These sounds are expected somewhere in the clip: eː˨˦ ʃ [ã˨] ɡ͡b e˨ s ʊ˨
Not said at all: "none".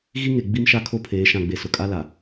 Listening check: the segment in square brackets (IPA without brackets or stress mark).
ã˨